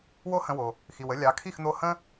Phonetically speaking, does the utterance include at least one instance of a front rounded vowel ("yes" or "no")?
no